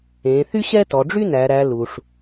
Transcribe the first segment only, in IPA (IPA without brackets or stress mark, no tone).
ẽ